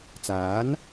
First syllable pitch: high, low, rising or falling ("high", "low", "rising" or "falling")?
rising